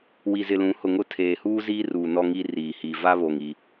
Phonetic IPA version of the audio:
w i˨ z ɪ˨ l ũ˨˦ h ʊ˨ ŋ ʊ˦ tʰ eː˨ h uː˦ z iː˦ r uː˨ n ɔ˦ ŋ i˦ r iː˨ h i˨ v a˦ β o˨ ŋ i˦

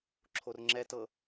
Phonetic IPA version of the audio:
ǁʰ o r ŋ͡ǁ ɛ t ɤ

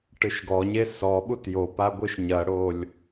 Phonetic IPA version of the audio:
ʈ ɨ ʃ ɡ ɔ ɲ e s ɔ ɓ u t j o p a ɡʷ ɨ ʃ ɲ ɐ ɽ o lʲ

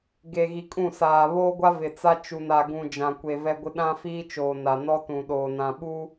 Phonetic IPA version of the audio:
ɡ e˨ ɣ i˨ kʼ ũ˦˨ s aː˨ β oː˦ ɡʷ a˦ v ɪ˨ t͡s a˦ t͡ʃ u˨ n a˨ ɡ ũ˨ d͡ʒ ã˨ kʷ e˨ v ɛ˦ ɡʷ ɪ˦ ɗ ã˦ f iː˦ t͡ʃ oː˨ n a˨ n ɔ˦ t ũ˨ ɗ oː˨ n ã˨ ɓ u˦

